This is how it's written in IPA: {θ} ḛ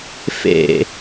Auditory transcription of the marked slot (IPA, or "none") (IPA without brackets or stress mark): f